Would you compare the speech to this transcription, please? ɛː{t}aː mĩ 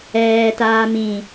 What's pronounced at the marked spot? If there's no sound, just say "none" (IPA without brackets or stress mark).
t